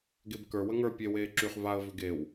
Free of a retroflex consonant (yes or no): yes